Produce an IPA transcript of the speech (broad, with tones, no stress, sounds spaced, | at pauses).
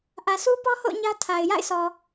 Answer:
ʔ ä˨ s u˦ p ɔ˦ h o̰˦˨ ʊ̯ ɲ ä˦ tʰ a˨ ɪ̯ j a̰˦˨ ɪ̯ s ɔ˨